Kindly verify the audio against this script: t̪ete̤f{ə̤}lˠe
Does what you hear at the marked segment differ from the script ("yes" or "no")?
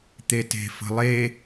no